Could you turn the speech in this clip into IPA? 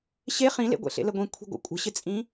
ɕ e χ ĩ l ḛ ɡʷ ḛ ɬ ḛ l ə ɡʷ ĩ kʷʰ i̤ ɡʷ ə̰ kʷʼ ə̤ ɕ ɪ t͡sʼ ĩ

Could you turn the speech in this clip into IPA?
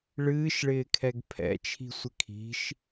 ɭ ɨː ʃ ɭ ɪː kʰ ɛ ɡ pʰ ɛ̰ t͡ʃʰ i̤ sʷ ɪ kʰ i̤ ʃ

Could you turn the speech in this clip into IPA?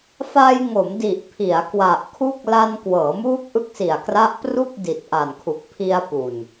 f a˧ j ŋ o˩˦ m d i˨˩ ʔ pʰ i˩˦ a̯ k w a˨˩ ʔ kʰ u˥˩ k̚ l a˧ n k w ɤː˩˦ m uː˦˥ k̚ ʔ ɯ˦˥ k̚ s i˨˩ a̯ k r a˦˥ ʔ p r u˥˩ k̚ d i˨˩ t̚ ʔ a˨˩ n kʰ u˨˩ k̚ pʰ i˧ a̯ p u˨˩ n

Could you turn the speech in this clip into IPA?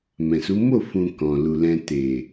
m ɛ̃˨ s u˨˦ m o˦˨ f ũ˨ k ɔ̃˨ l u˨ l ɛ̃˧ t e˨

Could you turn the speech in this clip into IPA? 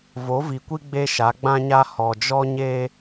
v o˨˦ v i˨ kʷ i˦ ɡ͡b e˦ ʃ a˨˦ ɡ͡b ã˦ ɲ a˦ h ɔ˨ d͡ʒ ɔ˦ ɲ e˦

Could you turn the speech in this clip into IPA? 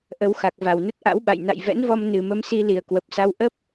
ʔ ə˧ w x a˨˩ k̚ v a˧˩ w n ə˦˥ t̚ ʔ a̰˧˥ w ɓ a̰˧˨ j n a̰˧˨ j v ɛ̰˧˥ n v ɔ˧ m n ɨ˨˩ m ə˧ m s i˧ l i˨˩ ə̯ k w ə˨˩ p̚ s a˧ w ʔ ə˦˥ p̚

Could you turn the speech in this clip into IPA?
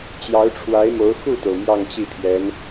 t͡ɕ j ɑ˧˥ ʊ̯ ʈ͡ʂʰ w a˧˥ ɪ̯ m o˧˥ ʊ̯ x u˥˩ t̪ o˩ ʊ̯ m j ɑ˥˧ ŋ t͡ɕ i˥˩ pʰ j ɛ˧˥ n

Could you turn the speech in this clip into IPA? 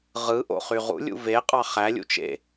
ʁ ɯ ʔ o̰ χ y ʁ ṵ lʲ ṵ v e qʼ ɑ χ æ lʲ ṵ t͡ʃ ḛ

